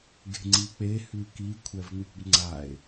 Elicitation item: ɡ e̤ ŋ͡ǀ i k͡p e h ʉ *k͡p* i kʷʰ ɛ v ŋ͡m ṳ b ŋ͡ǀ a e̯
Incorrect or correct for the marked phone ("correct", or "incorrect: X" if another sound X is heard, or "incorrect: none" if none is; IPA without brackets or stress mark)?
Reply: incorrect: k